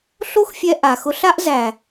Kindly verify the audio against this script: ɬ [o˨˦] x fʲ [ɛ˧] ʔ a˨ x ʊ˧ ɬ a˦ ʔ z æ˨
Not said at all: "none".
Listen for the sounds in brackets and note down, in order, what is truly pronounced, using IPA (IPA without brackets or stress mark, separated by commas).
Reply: o˦, ɛ˧